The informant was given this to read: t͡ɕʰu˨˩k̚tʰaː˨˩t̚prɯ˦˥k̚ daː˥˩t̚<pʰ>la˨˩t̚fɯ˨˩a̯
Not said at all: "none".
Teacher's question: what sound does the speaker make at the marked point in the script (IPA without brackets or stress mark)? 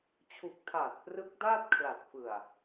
kʰ